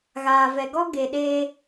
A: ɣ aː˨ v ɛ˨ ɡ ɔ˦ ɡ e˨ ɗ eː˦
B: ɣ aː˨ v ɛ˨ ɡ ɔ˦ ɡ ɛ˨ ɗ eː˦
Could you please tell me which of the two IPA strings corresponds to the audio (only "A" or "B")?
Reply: A